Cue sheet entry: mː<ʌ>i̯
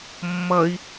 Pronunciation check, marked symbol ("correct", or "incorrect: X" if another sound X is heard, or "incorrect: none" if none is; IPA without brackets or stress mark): correct